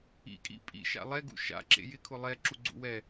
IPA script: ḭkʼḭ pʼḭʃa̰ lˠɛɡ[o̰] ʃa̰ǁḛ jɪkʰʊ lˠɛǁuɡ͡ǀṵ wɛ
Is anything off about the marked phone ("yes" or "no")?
yes